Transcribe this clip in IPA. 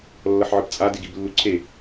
lː ʌ ħ ʕ ɯ p t͡sʼ a d e ɡ i b lː u ǀʰ e

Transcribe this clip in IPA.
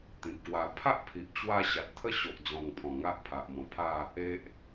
t̪ ĩ˨ p̚ k w a˧ pʰ a˦ ʔ pʰ i˨ ʔ t͡ɕ w a˧ ɕ a˨ t̚ t̪ʰ ə˥˧ ɕ o˨ ʔ d͡z ɔ̃˨˩ ŋ pʰ ɔ̃˨˩ ŋ a˦ ʔ pʰ a˨ ʔ m ɔ̃˨˩ pʰ a˥˧ | e˦ ʔ

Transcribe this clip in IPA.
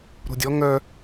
ɾ o̤ dʲ ɔ ŋ œ

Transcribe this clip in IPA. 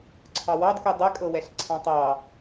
ǀʰ ɑ w ɑ d k u dˤ ɛ kʼ ɤ w ɛ ɬ ǀʰ ɑ̃ tˤ ɑ

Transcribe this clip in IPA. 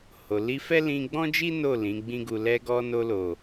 h o˨ l i˧ f ɛ˦ l ĩ˧ ɡ͡b ɔ̃˦ d͡ʒ i˦ n o˦˨ l ĩ˨˦ ɡ͡b ĩ˦ ɡ u˧ l ɛ˧ ɡ ɔ˧ n o˧ l o˨

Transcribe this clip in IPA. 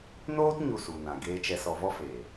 n oː˦ t ɲ u˦˨ s u˨ n ã˨ ɡ eː˧ t͡ʃ ɛ˧ s ɔ˧ v ɔ˦ f eː˨

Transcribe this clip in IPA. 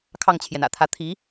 kʰ ɑ˥˩ ŋ t͡ɕʰ j ɛ˩ n ä̰˨˩ t̪ʰ ä˥˩ t̪ʰ i˧˥

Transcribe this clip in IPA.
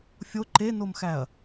fʲ o ǃ e n o m x æ ɐ̯

